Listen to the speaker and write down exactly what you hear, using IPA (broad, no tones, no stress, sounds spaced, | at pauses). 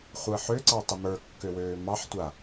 χʷ əː ħ ø ǀ ɑ tˤ ə m ə˞ kː ø w øː m ɑ ħ tʷ a